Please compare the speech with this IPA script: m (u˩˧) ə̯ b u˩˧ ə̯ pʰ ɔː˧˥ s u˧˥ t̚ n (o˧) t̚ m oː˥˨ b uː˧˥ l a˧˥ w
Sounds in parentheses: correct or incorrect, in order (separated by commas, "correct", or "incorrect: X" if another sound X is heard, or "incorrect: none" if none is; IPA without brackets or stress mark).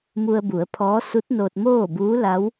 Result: incorrect: u˧, correct